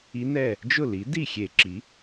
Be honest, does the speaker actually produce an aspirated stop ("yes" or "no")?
no